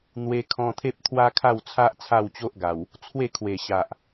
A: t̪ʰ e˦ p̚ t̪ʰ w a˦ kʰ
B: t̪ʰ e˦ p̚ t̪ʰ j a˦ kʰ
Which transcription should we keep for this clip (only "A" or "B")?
A